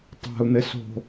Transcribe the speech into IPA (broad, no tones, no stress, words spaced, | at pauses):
tˤa̤u̯n̪ɘ so̤